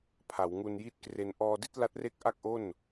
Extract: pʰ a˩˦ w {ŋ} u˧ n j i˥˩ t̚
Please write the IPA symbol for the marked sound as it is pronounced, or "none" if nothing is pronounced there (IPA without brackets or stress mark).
ŋ